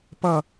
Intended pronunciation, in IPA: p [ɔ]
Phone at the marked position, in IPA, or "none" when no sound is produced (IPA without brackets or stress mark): ʌ